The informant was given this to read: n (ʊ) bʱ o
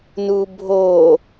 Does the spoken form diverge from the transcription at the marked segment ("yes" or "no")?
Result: yes